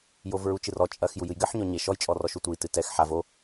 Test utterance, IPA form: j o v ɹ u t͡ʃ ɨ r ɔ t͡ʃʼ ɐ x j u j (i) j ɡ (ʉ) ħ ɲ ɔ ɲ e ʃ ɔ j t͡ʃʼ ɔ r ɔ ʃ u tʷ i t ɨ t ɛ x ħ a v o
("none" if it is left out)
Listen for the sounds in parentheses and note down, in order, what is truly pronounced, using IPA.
ɨ, ɘ

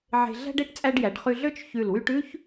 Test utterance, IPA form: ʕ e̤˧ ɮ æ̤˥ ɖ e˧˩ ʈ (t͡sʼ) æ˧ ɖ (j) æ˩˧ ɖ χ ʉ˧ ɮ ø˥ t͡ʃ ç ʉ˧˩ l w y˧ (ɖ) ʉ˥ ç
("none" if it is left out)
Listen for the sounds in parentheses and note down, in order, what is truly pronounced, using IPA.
t͡sʼ, j, ʈ

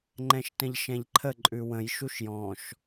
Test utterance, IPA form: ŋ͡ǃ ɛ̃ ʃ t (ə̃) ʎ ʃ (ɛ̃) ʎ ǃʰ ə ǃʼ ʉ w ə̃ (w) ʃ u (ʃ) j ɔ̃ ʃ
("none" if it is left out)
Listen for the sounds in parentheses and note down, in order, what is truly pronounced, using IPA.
ə̃, ɛ̃, j, ʃ

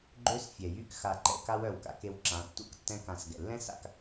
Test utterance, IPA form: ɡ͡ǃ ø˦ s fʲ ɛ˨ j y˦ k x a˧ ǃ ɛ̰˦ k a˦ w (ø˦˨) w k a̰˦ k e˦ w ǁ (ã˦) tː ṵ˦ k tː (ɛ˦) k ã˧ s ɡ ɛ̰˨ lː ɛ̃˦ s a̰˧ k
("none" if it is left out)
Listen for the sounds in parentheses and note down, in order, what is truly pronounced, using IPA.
œ˦˨, ã˨˦, ɛ̃˦

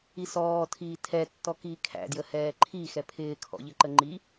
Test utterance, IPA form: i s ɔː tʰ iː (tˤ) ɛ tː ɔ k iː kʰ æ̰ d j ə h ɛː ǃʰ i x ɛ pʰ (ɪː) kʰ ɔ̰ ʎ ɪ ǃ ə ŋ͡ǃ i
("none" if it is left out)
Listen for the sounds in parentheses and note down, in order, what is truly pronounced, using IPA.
tʰ, ɪː

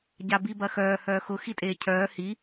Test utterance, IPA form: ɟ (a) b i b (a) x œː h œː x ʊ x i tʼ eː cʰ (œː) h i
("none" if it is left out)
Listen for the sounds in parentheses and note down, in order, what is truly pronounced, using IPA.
a, ɐ, œː

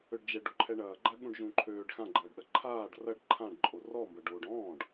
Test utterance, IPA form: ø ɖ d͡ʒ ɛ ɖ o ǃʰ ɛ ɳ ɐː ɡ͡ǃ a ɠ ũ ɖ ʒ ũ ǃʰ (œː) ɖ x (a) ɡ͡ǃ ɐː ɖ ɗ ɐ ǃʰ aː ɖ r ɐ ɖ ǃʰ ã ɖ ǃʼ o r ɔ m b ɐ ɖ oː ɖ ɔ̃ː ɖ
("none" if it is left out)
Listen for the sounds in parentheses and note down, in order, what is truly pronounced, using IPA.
øː, ã

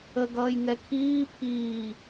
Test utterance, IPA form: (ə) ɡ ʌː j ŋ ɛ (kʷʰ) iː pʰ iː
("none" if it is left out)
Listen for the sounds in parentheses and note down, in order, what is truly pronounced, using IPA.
ə, kʰ

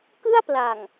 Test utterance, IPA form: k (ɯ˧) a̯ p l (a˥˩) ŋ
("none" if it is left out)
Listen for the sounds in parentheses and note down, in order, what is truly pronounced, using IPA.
ɯ˥˩, a˨˩

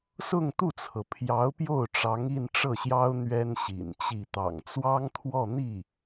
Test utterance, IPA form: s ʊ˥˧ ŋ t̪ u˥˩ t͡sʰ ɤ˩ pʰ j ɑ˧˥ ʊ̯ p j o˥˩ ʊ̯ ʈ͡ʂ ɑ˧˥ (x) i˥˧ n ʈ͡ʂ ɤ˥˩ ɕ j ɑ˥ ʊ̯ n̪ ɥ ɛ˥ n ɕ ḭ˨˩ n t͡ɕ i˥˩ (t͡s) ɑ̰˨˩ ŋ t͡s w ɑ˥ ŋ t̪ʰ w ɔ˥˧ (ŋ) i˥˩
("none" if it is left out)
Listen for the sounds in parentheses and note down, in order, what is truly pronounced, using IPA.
ŋ, t̪, n̪

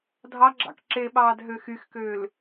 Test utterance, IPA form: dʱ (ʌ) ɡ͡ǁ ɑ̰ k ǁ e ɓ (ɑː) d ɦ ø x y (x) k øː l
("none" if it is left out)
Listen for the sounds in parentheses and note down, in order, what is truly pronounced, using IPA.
ɑ, ɑː, x

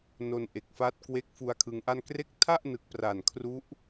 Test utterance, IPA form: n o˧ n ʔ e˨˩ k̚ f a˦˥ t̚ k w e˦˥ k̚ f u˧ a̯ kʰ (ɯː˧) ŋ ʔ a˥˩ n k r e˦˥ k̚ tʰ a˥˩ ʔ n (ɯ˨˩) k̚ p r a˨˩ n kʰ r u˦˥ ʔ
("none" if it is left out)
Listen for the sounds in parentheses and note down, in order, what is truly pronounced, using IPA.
ɯ˧, ɯ˨˩

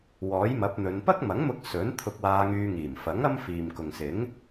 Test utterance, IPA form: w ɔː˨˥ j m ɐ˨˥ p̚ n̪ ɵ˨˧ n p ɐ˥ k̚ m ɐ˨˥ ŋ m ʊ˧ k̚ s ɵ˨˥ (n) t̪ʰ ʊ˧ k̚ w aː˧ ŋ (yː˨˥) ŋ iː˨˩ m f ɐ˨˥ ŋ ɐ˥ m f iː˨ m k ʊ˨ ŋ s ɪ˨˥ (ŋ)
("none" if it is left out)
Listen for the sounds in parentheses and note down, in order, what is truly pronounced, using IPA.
n, yː˧, ŋ

